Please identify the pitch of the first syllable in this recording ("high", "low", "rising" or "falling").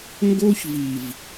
high